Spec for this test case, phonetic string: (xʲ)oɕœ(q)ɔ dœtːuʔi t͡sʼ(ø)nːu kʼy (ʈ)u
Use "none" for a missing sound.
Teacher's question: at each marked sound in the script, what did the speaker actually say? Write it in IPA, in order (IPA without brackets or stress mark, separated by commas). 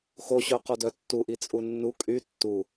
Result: x, q, u, tː